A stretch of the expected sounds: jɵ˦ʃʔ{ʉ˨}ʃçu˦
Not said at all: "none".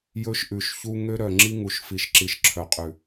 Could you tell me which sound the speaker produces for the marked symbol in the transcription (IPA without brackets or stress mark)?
ʉ˨